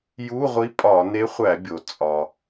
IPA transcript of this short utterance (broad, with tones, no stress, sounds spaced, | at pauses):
j u˧˥˧ ʁʷ i˧˥ pʼ ɒ˧˩˧ n e˧˥ χʷ æ˧˩˧ bʲ o˩ t͡sʼ ɒ˩